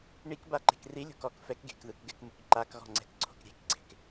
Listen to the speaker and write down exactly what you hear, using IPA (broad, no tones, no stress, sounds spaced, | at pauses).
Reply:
ɳ i k b a ǃ e̤ k r i lʲ o̤ k ɔ k f ɛ k ɡ e̤ k ð ɯ k ɡ ɛ k m u k ǃ a k ɣ ɔ̤ ŋ͡ǀ ɛ̤ k ǀʰ o̤ k ɾʲ e̤ k ɡ͡ǀ e̤ k